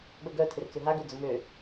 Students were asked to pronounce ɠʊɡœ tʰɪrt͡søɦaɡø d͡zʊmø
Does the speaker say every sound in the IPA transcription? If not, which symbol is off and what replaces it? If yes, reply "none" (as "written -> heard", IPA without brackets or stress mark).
none